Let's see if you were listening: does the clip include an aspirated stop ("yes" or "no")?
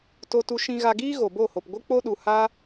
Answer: no